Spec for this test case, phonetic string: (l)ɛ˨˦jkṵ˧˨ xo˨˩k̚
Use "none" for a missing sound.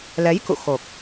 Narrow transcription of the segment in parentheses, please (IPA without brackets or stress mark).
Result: l